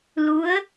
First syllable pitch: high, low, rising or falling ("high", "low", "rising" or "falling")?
rising